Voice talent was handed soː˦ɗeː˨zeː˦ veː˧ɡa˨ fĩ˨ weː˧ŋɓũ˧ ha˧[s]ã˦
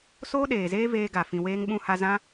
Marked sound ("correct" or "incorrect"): incorrect